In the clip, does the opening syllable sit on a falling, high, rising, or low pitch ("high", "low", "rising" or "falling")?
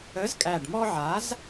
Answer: rising